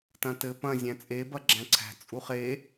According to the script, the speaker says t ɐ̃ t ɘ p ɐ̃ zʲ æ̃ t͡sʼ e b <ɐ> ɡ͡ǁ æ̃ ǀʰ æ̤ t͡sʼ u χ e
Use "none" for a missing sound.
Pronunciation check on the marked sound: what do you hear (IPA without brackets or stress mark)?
ɐ